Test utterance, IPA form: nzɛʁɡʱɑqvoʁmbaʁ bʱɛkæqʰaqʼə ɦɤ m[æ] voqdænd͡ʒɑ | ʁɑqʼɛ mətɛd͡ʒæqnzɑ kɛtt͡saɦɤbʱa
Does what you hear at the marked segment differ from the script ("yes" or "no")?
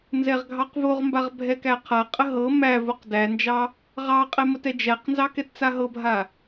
no